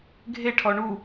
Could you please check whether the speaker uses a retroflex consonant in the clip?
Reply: yes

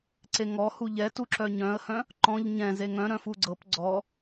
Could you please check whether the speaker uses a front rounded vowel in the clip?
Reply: yes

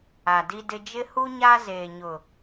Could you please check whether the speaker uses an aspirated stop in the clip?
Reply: no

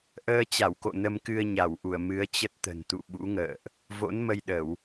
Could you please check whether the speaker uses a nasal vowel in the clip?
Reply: no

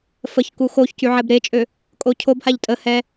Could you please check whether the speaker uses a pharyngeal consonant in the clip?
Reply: yes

